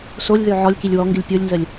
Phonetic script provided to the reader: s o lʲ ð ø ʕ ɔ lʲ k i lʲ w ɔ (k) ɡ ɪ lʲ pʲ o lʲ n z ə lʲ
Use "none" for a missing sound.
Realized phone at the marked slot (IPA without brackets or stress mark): ŋ